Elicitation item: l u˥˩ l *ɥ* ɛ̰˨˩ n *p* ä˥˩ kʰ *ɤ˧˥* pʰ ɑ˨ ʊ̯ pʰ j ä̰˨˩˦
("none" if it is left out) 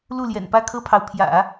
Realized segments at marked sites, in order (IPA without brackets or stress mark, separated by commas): j, p, ɤ˥